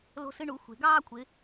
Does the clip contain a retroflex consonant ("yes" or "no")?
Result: yes